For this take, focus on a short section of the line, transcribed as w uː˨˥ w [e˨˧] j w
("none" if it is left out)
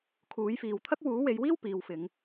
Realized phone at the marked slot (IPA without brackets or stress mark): e˨˧